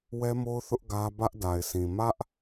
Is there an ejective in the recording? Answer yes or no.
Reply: no